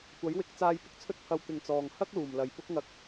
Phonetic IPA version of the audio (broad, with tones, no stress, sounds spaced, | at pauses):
kʷ ɐ˨˥ j w ɪ˨˥ k̚ t͡s aː˧ j p ɪ˧ k̚ t͡sʰ ɵ˥ t̚ pʰ ɐ˧ w t̪ ɪ˨ ŋ t͡s ɔː˨ ŋ h ɐ˥ k̚ l uː˨˩ m l ɐ˨ j p ʊ˥ k̚ ŋ ɐ˧ k̚